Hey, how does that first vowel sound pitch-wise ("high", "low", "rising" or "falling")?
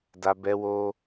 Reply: high